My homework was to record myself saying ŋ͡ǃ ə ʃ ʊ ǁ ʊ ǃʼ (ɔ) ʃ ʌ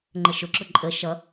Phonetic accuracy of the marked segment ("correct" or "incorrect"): incorrect